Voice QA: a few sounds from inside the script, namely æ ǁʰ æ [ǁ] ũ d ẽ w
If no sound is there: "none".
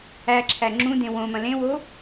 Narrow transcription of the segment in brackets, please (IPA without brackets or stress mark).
ŋ͡ǁ